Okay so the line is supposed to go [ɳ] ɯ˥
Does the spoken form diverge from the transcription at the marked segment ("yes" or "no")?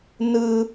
yes